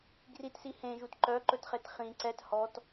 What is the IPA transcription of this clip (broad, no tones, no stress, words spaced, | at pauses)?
ɡritsi hẽʒut ǃœǃɵtχet χĩ ǀɛt hɔt